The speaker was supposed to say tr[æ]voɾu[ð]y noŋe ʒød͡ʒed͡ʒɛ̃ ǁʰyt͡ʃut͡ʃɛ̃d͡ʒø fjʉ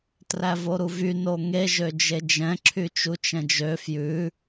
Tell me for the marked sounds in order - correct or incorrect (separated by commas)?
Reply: correct, incorrect